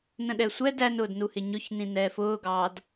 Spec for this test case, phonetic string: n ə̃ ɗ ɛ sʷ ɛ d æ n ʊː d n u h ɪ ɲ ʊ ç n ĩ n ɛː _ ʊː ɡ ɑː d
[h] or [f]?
f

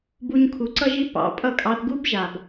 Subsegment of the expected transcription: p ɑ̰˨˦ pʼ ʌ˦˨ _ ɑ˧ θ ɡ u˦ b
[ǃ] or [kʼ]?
kʼ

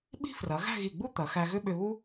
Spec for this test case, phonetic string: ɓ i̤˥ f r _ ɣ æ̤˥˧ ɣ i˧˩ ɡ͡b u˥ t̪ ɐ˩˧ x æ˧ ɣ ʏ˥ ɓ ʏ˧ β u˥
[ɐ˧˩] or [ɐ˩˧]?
ɐ˩˧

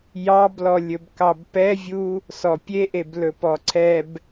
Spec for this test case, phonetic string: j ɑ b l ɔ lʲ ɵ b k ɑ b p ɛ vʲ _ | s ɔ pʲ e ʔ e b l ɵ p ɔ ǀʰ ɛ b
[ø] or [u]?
u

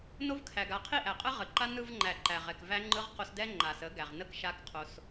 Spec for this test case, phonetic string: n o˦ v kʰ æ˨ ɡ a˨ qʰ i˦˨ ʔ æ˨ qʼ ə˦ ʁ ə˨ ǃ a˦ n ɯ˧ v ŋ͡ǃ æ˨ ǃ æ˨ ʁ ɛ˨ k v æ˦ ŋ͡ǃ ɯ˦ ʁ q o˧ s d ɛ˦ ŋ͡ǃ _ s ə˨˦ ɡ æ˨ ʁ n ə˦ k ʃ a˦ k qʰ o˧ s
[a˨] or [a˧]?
a˨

